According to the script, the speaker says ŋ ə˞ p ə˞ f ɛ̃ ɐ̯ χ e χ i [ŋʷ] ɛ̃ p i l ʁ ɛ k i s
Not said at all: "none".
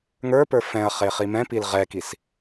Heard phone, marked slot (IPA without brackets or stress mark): m